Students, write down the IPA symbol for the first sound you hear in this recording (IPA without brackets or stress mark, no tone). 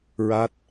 ɹ